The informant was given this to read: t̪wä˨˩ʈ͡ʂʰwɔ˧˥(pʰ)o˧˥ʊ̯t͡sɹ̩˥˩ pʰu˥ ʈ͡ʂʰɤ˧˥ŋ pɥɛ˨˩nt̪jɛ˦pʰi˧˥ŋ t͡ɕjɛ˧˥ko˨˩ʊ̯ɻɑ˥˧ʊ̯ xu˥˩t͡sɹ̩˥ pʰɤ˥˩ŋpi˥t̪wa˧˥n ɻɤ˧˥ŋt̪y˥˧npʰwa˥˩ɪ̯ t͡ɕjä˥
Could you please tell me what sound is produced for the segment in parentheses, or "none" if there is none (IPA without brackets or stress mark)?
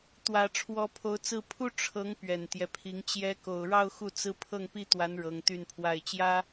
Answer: pʰ